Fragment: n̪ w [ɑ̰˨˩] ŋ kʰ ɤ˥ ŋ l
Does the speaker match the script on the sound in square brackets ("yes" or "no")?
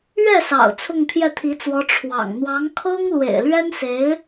no